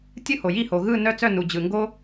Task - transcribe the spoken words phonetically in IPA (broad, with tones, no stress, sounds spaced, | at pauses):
tʲ ɯ˥˩ h o˩ j i˥˩ h o˩ ɣ ɯ˥˩ n œ˥˩ t͡s œ˥˩ n u˩ d͡ʑ ɯ˩ ŋ ɡ o˦